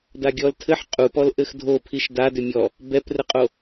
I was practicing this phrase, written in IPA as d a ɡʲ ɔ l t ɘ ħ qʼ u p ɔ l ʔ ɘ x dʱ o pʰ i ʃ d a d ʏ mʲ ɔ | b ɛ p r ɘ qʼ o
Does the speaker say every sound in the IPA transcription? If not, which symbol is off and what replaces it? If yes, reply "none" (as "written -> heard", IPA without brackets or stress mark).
t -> tʰ